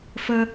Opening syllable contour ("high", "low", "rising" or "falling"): high